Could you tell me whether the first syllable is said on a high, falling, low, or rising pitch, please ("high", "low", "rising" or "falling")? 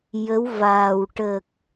rising